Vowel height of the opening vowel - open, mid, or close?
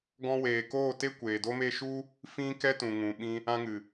mid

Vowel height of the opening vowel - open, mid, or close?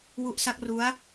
close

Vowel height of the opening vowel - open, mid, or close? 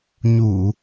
close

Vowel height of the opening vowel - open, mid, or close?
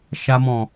open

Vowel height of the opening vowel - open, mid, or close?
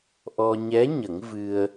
mid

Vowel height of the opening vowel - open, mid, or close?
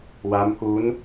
open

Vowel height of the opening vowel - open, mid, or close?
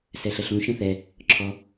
mid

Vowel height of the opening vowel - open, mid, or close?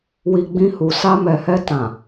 close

